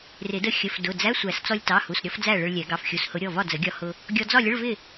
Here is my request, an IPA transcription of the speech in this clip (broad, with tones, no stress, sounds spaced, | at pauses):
r ɪ˨˩˦ d ə˧ xʲ ə˩˧˩ f d ʊ˩˧˩ d͡z æ˧˥˧ sʷ æ˨˩˦ s t͡s ɔ˧ lʲ t ɑ˩˧˩ h u˩˧˩ s ɾʲ ɔ˧ f d͡z æ˥˨ ɭ ə˧ ɭ lʲ ɛ˨˩˦ ɡ ɑ˩˧˩ f xʲ u˩˧˩ s h ʊ˨˩˦ ɾʲ ɔ˩˧˩ v ɒ˥˨ d͡z ə˨˩˦ ɡʲ ɒ˧ h ʊ˧ | ɡʲ ɔ˧ d͡z ɒ˥˨ lʲ ə˧˥˧ ɭ v ɪ˥˨